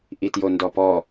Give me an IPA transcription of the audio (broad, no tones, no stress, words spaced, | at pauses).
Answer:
ʔitjondɔpɔ